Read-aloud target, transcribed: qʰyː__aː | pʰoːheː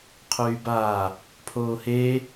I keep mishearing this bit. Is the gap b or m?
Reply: b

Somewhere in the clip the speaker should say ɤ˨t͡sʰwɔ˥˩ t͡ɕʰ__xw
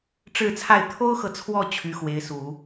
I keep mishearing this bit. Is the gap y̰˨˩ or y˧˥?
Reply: y˧˥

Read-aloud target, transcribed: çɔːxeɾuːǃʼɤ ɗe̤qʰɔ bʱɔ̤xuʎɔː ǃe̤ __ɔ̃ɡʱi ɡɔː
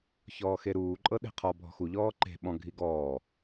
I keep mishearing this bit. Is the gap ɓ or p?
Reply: ɓ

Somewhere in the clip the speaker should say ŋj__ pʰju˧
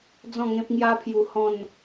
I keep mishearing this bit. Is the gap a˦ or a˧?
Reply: a˦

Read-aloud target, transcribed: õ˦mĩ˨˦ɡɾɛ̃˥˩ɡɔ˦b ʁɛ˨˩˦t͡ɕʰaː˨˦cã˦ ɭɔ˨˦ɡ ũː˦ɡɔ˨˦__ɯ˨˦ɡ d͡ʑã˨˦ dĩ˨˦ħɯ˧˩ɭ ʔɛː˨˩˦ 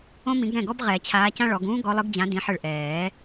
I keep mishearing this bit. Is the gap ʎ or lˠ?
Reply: lˠ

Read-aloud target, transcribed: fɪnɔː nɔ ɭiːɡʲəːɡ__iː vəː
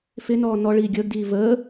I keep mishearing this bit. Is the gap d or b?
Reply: d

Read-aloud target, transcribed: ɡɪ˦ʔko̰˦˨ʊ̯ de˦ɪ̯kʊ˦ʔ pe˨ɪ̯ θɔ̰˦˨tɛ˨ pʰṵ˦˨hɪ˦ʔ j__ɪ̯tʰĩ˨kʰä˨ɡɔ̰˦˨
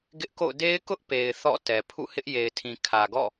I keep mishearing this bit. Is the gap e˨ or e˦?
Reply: e˨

